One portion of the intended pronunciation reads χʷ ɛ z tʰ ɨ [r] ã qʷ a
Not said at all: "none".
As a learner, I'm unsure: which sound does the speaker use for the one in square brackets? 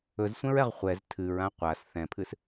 ɹ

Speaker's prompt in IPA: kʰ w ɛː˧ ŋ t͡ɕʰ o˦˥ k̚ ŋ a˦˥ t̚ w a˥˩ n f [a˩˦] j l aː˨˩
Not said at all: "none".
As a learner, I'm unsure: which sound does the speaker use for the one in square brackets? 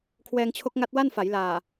a˩˦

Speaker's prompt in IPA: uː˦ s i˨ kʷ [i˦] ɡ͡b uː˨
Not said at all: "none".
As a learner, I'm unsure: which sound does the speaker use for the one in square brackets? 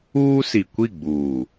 i˦˨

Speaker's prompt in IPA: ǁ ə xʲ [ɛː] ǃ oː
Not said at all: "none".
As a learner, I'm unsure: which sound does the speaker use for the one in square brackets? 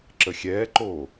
ɛː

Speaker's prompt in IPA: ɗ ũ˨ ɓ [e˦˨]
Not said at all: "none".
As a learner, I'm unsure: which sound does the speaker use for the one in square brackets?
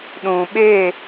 e˦˨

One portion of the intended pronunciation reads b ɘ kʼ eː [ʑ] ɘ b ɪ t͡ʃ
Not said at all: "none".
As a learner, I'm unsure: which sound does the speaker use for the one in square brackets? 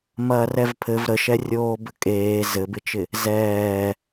z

